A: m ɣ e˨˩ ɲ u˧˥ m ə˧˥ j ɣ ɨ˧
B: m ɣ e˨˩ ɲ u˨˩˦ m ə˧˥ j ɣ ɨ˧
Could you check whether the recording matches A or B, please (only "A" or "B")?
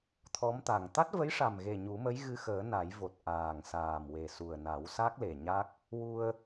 B